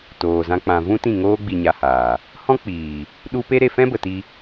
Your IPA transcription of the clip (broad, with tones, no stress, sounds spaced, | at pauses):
t oː˨ z ã˦ k͡p ã˧ v ũ˦ t ĩ˦˨ ŋ oː˦ ɡ͡b i˧ ɲ a˧ h aː˨ | h ɔ̃˦ k͡p iː˨ | ɗ u˦ p e˦ ɾ e˧ f ɛ̃˦ b ə˨ t i˧